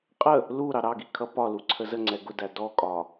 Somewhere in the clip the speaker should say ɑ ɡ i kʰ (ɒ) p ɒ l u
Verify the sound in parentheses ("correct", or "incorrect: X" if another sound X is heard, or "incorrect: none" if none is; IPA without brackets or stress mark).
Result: incorrect: ʌ